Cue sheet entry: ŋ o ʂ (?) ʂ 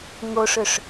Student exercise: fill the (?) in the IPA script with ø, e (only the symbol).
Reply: ø